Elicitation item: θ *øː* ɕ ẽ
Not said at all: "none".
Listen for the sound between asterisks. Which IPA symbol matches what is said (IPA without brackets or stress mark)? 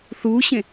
uː